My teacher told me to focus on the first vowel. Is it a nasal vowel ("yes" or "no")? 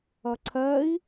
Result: no